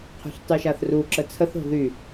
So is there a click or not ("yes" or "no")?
yes